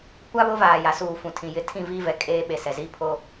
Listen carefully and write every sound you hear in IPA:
kʷ a˦ β ʊ˦ v aː˨ j a˨ s uː˨ f ũ˨ tʰ ĩ˨ j ɪ˨ tʰ ĩ˦˨ v i˦ v ɛ˨ kʼ eː˦ ɓ e˨ s ɛ˨ z i˦ pʰ o˦

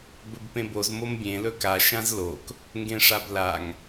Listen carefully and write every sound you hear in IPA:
b ɵ b p ẽ b o z m o m bʲ ẽ l ɵ k a ʃ ã z l o k | ŋ ɡ ẽ ʂ a b l a ŋ

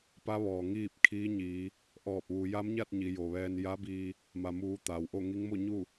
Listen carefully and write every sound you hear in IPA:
p a˧˥ ʋ ɔː˩ ŋ iː˥˨ p̚ kʰ i˧˥ ɲ iː˩˧ | ʔ ɔː˧˩ p̚ ʋ u˩˧ j a˧˥ m ɲ a˥˨ t̚ ɲ i˩˧ j o˩ ʋ ɛː˧ n j a˧˥ b iː˧ | m a˩ m uː˩˧ t̪ aː˩ w ʔ o˥˨ ŋ i˧˥ ŋ m o˥˨ ɲ u˥˨

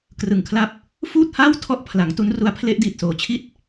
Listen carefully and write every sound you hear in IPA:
k r ɯ˨˩ ŋ kʰ l a˦˥ p̚ | f uː˥˩ t̚ h aː˥˩ w tʰ ɔ˦˥ ʔ pʰ l a˩˦ ŋ t u˦˥ n r u˦˥ a̯ pʰ l e˦˥ ʔ d iː˨˩ t̚ s oː˩˦ t͡ɕʰ i˦˥ t̚

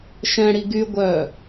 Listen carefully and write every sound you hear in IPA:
ʃ ɛ̃ ɽ i ɡ y ɡʷ œ

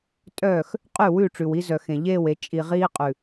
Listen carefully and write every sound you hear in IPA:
tʼ œː˦˨ x | qʼ ʉ˦˨ w ʉ˦˨ ʈ͡ʂ ʉ˨ w i˦ z œ˨ x ẽ˨ ʎ eː˦˨ w e˨ t͡ʃʼ i˨ ʁ iː˦ qʼ ʉ˨

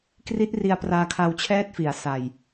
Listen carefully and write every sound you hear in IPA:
k r i˦˥ t̚ r i˧ a̯ p r aː˧ kʰ a˧ w t͡ɕʰ ɛː˥˩ t̚ f i˩˦ a̯ s a˨˩ j

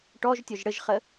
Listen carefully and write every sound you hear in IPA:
ʈ ɔ ʒ tʲ ɔ ʒ ɽ ə ʒ χ ə

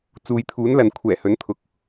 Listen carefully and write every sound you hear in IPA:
t͡s uː˨ j t̪ʰ uː˨˥ n l ɐ˨ n kʷʰ ɛː˨˩ h ɵ˨˥ n t̪ʰ ʊ˨ k̚

